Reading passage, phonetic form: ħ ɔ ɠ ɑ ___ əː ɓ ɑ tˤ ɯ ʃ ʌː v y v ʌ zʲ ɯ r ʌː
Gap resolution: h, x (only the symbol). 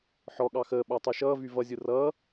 x